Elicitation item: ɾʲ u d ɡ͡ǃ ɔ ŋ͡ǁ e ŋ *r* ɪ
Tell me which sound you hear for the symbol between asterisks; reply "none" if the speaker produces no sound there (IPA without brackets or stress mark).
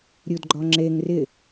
r